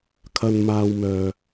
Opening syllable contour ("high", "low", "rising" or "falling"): low